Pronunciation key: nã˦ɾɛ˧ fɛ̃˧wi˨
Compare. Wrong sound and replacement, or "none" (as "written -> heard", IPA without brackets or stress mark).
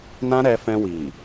none